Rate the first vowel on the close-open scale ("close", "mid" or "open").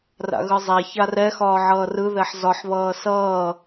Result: open